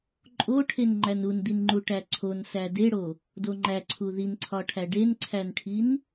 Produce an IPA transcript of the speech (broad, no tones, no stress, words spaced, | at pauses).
ǃʼoʈʰen ŋ͡ǃænund̪inŋ͡ǃu ʈæǀʰonsæ deɽo | doŋ͡ǃæ ǀʰuðinǀʰɒʈʰæ ɖenǀʰænʈʰin